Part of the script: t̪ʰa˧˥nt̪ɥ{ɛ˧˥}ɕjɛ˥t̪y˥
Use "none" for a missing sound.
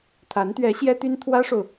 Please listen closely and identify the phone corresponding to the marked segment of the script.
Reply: ɛ˧˥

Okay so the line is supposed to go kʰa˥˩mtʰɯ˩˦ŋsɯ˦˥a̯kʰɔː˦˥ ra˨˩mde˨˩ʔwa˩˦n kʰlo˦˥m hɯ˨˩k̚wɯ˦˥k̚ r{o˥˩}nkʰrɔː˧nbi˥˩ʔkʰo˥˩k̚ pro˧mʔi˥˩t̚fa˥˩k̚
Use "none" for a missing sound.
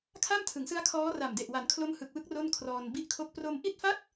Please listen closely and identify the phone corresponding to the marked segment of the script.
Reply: o˥˩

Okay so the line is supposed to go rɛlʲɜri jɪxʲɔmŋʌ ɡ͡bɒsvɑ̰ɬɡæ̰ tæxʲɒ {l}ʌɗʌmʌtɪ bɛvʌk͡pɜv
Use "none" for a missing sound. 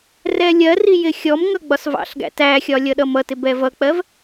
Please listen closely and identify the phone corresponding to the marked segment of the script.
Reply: lʲ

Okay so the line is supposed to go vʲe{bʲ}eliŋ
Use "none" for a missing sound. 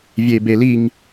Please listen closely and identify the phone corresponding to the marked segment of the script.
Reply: b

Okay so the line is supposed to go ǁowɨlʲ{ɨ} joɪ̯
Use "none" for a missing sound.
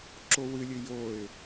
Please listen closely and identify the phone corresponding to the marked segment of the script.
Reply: ɨ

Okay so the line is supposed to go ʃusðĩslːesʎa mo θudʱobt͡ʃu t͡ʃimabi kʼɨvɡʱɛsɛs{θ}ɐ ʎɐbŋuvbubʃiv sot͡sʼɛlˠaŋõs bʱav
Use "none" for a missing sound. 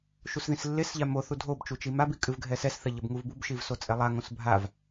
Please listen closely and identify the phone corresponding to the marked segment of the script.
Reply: θ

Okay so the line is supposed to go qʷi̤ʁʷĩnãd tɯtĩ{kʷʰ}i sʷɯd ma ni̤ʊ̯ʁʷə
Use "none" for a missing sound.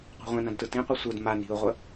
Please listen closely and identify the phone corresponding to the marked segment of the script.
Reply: qʷ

